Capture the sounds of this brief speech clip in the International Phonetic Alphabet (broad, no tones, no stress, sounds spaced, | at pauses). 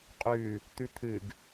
qʼ ʉ | t̪ ʉ t̪ʰ ɨ ɡ